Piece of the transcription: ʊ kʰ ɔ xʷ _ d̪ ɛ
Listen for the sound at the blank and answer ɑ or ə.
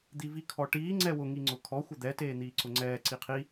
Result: ə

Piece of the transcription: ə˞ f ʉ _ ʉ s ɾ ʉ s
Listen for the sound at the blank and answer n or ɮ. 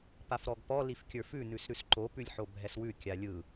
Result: n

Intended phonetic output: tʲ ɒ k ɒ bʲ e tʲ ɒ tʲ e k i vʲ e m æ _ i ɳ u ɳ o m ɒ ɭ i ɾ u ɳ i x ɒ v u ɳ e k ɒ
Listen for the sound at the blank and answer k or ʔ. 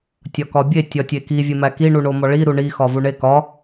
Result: k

